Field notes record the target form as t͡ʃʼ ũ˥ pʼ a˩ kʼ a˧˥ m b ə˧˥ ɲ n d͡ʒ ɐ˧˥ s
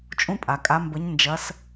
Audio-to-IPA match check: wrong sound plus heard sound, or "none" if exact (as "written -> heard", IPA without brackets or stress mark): none